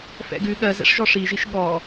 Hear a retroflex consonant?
yes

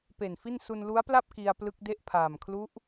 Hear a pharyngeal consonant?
no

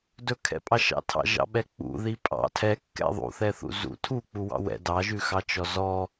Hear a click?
no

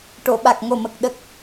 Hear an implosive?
yes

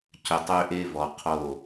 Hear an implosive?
no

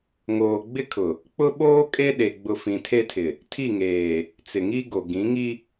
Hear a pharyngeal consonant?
no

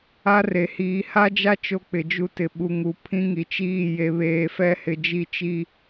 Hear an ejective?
no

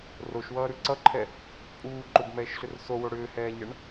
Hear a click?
yes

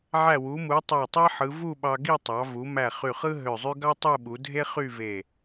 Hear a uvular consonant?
yes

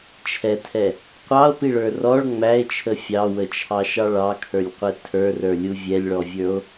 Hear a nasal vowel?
no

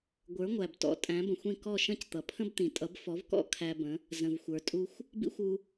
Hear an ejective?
yes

